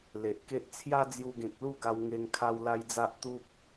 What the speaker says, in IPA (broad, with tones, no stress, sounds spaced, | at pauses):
l e˨ ʔ k e˦ ʔ t͡sʰ j a˦ d͡z j u˧ ɡ ẽ˨ k̚ l u˥˧ ɡ a˧ w ŋ e˧ ŋ kʰ a˦ w l a˦ j d͡z a˦ ʔ t̪ u˦ p̚